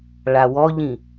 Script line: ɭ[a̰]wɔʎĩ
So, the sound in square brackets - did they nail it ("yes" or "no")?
no